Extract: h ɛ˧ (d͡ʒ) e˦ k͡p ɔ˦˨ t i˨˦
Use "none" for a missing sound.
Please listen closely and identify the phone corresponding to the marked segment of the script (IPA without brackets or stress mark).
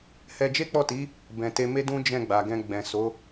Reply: d͡ʒ